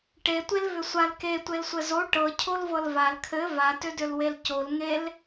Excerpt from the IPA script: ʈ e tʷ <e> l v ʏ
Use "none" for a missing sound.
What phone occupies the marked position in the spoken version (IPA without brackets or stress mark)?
e